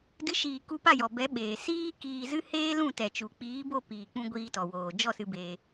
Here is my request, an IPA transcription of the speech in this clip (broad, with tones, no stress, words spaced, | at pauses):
dɨ˨˦ʃiː˨ ku˧pa˦˨jɔ˨bɛ˨˦ ɓeː˨ siː˦kiː˧ zɨ˦ heː˦lũ˦˨ tɛ˨t͡ʃu˨ k͡piː˨˦bo˦˨ piː˨k͡pũ˧ ɡʷiː˧tɔ˨woː˨ d͡ʒɔ˦˨sɨ˧ beː˧